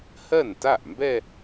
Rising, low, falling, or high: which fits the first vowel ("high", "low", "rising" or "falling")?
falling